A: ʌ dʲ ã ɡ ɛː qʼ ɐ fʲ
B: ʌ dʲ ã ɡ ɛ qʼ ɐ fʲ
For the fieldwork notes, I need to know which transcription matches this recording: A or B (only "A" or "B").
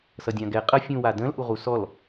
B